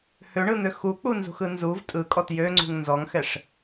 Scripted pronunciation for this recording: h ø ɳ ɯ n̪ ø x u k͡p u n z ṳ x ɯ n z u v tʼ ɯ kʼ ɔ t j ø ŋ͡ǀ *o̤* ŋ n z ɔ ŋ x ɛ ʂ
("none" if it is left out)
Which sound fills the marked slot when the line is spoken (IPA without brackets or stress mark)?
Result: ṳ